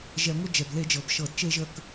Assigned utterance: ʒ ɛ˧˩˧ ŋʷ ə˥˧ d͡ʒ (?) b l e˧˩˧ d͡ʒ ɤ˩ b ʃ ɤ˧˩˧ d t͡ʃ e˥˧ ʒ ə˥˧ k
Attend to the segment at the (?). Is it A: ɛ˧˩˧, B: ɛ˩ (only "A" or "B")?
B